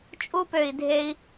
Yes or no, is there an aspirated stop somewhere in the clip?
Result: no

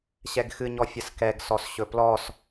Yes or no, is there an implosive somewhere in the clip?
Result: no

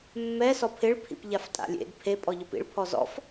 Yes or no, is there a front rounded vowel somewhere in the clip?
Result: no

